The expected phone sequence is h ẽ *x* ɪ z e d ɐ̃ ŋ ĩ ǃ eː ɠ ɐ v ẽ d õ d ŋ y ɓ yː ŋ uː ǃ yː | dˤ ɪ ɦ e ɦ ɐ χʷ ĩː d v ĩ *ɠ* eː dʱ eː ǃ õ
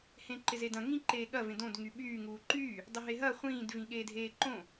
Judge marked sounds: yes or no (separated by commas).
no, yes